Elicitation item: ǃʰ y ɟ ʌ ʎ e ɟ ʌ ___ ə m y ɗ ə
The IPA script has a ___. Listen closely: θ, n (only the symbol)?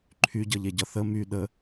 θ